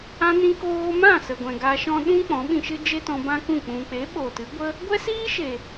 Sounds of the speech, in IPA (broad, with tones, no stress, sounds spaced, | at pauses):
ã˧ n ĩ˧ k oː˧ m ã˦˨ s ə˨ ɡʷ ɛ̃˨ ɡ a˧ ʃ ɔ̃˦ ɗ ũ˦ k͡p ɔ̃˨˦ ɓ ĩ˧ ʃ ɨ˦ d͡ʒ e˦ t ɔ̃˧ b ã˦ k ũ˦˨ k͡p ũ˨ k͡p e˨˦ ɓ o˨ t ɨ˨˦ ɡʷ ə˧ | ɡʷ ɛ˦ s iː˦ ʃ e˨